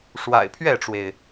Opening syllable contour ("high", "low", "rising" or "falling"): low